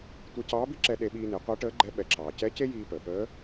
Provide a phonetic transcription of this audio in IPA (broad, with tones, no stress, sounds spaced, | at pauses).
tʷ e˧ c ɑː˧˥ b i˥ ǁ ɛ˧ ɗ e˧ ɓ iː˧ n i˩˧ qʷ əː˧˥ ʈ əː˧˥ ɡ͡ǃ ɛ˧˥ ɓ ɛ˩˧ ǁʰ ɑː˩ c ɛ˧˥ c e˥ j iː˧ p əː˩ p əː˧˥